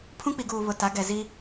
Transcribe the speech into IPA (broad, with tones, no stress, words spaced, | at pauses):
pʰũ˦k͡pi˨ɡuː˨ βʊ˨ta˨˦ ɡɛ˨zi˦